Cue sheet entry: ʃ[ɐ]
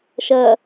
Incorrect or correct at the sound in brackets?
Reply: correct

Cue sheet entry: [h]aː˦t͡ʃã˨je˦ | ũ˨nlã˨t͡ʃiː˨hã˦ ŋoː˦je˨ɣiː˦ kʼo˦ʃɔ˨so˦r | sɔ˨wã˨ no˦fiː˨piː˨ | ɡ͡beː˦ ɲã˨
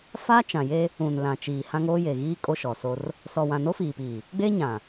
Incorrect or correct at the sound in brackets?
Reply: incorrect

